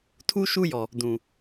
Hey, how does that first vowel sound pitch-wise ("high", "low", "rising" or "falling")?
high